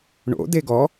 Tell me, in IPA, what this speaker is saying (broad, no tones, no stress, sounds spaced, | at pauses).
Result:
ɳ o̰ d e ɡ ɔ